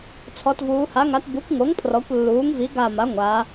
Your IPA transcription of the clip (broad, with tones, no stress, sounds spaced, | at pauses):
t͡sʰ ɔ˩˧ t v uː˩˧ h a˩˥ ŋ a˩˥ t b u˩˥ kʷ ŋ o˩˥ ŋ pʰ r ɔ˩˧ kʷ lː uː˩˥ ŋ v i˩˥ ɡ a˧˩ m a˩˥ ŋʷ aː˩˧